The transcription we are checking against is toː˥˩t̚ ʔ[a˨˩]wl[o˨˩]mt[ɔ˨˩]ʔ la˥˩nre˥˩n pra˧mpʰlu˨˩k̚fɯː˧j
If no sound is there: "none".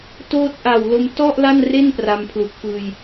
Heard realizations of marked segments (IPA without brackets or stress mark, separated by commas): a˨˩, o˧, ɔ˥˩